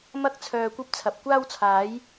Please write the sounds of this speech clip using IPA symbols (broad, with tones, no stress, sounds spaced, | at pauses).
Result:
m ɐ˥ k̚ t͡sʰ œː˧ kʷ ɐ˥ p̚ t͡sʰ ɐ˨ p̚ kʷ aː˥ w t͡sʰ aː˨˥ j